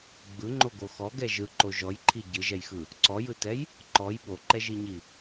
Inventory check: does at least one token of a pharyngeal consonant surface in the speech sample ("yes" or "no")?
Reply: no